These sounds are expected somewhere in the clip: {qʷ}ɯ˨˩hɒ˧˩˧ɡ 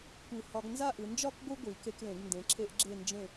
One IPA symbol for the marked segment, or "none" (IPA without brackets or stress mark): kʷ